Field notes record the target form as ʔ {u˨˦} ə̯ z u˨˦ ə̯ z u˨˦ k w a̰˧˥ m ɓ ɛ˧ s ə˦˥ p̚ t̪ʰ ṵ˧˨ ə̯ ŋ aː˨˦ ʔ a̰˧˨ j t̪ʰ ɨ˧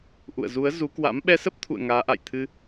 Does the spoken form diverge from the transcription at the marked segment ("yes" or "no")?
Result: yes